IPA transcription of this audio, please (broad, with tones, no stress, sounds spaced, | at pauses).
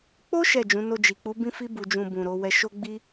k͡p o˦ ʃ ɛ˦˨ d͡ʒ ũ˨˦ n o˧ d͡ʒ i˨ k͡p u˨˦ b ĩ˦ f i˦ b u˧ d͡ʒ ũ˧ b ũ˨ ɾ o˨˦ w ɛ˧ ʃ o˦ ɡ͡b i˦